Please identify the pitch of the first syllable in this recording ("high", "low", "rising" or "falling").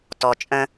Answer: low